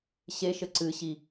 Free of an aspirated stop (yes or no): yes